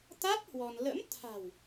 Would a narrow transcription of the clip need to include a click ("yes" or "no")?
no